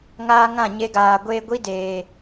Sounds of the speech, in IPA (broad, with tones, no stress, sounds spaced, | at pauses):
ŋ aː˦ ŋ ã˦˨ ɲ e˧ ɡ aː˨ ɡʷ eː˧ ɡʷ i˦ d eː˨